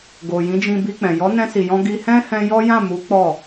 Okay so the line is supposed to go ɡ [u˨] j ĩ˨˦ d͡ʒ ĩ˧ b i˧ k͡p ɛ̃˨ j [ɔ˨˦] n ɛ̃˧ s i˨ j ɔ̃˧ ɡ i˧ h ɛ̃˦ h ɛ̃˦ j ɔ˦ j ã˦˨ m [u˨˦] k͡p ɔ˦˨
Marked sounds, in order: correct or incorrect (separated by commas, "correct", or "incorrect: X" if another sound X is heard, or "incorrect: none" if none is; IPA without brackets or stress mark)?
incorrect: o˨, correct, correct